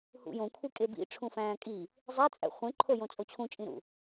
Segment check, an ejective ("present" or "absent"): present